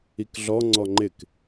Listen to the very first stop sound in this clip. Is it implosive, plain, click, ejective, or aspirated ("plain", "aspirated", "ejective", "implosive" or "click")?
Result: plain